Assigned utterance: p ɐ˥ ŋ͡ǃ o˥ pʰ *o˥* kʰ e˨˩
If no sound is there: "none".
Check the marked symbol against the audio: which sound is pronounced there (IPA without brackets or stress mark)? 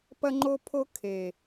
o˥